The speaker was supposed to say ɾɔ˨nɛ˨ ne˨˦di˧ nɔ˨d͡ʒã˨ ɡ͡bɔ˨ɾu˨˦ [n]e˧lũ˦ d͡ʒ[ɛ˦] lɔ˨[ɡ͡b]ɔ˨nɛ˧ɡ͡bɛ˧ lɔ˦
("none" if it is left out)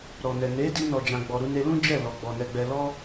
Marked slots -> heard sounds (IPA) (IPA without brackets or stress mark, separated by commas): n, ɛ˦˨, ɡ͡b